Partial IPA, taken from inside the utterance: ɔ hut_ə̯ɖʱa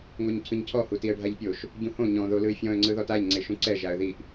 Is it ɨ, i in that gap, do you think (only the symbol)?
i